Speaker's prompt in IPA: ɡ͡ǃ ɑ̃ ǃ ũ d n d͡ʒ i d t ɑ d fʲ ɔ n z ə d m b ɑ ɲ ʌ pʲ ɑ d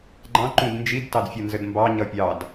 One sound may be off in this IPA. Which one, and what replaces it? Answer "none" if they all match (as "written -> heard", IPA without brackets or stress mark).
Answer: ɔ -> ʌ